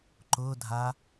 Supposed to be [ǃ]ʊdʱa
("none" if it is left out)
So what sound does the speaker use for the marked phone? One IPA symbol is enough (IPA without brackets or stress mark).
ǃ